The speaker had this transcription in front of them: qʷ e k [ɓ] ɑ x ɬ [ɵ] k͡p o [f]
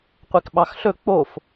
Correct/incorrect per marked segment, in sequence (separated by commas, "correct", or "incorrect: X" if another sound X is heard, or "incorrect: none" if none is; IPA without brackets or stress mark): correct, correct, correct